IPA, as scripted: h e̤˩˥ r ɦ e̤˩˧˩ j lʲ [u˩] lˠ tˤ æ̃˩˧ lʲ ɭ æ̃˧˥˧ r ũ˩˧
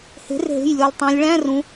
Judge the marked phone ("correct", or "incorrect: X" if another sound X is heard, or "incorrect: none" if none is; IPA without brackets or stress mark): correct